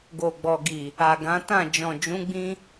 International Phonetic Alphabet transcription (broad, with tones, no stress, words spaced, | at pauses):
ɡo˨ɡ͡bɔ˨ɡi˨ | a˨ɡã˨˦tã˦˨ d͡ʒɔ̃˨d͡ʒũ˨˦ɡ͡bĩ˧